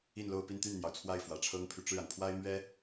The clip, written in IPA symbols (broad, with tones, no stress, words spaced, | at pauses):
i˥˧n lo˥˧ʊ̯ pi˥˧nt̪y˥˩nn̪jɑ˩ʊ̯ t͡sʰwa˥˩ɪ̯fwä˨˩ʈ͡ʂʰɤ˥ŋpʰy˨ ʈ͡ʂɻ̩˥˩a˩npʰwa˥ɪ̯ mɥɛ˥